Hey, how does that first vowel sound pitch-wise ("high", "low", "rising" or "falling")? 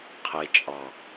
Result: low